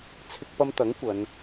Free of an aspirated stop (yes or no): no